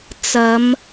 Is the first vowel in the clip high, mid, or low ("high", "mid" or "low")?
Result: low